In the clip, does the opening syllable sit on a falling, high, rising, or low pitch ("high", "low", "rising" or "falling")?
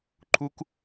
high